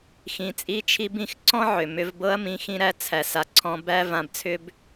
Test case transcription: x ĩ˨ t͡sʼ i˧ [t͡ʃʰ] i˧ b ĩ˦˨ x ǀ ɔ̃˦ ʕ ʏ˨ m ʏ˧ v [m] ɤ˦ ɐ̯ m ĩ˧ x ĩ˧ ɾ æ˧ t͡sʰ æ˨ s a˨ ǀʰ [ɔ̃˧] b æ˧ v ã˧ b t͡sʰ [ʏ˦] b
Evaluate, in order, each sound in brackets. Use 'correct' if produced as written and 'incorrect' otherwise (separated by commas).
correct, incorrect, correct, correct